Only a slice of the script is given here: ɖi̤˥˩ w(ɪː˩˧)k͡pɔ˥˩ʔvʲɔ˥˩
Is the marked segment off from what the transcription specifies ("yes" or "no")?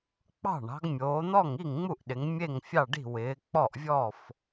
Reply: no